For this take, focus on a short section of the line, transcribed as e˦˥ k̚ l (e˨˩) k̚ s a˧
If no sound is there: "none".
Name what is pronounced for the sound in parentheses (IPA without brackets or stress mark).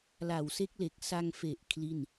e˨˩